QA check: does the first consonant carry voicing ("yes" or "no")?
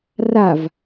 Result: yes